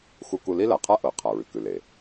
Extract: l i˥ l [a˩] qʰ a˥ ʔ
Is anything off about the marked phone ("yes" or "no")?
no